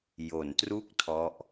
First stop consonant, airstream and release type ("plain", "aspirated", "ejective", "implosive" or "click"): plain